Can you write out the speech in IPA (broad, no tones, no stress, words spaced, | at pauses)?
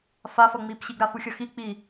fafʌŋ͡mipɕiɡ ɾafuxʲʌxi k͡pi